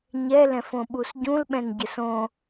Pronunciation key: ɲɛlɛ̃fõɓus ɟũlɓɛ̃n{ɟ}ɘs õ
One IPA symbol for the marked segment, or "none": ɟ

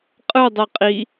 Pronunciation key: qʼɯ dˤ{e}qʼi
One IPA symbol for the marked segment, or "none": e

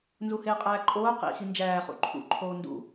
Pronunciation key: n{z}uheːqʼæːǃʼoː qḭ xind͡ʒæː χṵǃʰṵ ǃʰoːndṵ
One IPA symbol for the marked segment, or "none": z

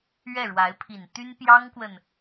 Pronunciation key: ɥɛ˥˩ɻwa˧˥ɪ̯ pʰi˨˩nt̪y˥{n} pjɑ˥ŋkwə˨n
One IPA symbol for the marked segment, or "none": n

